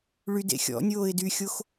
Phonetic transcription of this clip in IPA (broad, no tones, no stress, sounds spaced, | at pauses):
ɭ y d ḛ xʲ ɔ̰ nʲ oː ɪ̯ d y xʲ o x